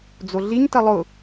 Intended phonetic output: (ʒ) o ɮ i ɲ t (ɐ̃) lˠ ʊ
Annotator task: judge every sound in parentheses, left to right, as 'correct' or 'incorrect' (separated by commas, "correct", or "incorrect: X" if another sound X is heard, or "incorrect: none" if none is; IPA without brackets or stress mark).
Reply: incorrect: d͡z, incorrect: ɐ